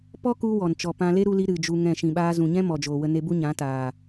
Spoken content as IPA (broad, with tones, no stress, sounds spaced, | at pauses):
p ɔ˦ k u˧ w ɔ˨ n t͡ʃ ɔ˨ p ã˧ l e˦ ɾ u˧ l i˧ ɾ ɨ˨ d͡ʒ u˧ ŋ ɛ̃˦˨ ʃ ĩ˨ ɓ aː˧ z ũ˨ ɲ ɛ̃˦ m ɔ˨ d͡ʒ oː˨ w ə˧ n e˧ b u˦ ɲ ã˨˦ t aː˨